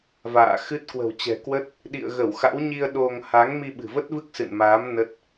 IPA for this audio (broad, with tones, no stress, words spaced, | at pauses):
va̰ː˧˨xɨ˦˥t̚ kwə̤˨˩wt͡ɕɛ̤˨˩kwə˦˥t̚ | ɗḭ˧˨ə̯ɣə˧˩wxa̰˧˥wɲi˧ə̯ ɗo˧ŋ ha˨˦ŋ mi˧ɓɨ̤˨˩və˦˥t̚vɨ˦˥k̚ sɨ̰˧˨nmaː˨˦m nə˦˥t̚